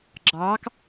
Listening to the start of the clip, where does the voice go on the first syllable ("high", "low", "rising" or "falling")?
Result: rising